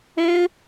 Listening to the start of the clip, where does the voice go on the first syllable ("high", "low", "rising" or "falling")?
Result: high